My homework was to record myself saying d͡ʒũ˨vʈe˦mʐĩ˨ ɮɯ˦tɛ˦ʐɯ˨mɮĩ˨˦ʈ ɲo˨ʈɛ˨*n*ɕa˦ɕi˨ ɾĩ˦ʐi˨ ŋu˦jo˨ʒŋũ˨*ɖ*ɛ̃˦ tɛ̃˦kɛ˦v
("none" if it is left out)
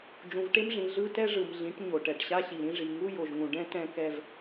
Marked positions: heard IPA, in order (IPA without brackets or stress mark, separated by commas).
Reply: ʈ, ɖ